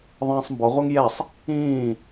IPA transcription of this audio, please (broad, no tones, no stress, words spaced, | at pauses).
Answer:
ðˤĩːsˤmbɔʁʷɛŋ jɛsˤ | ĩː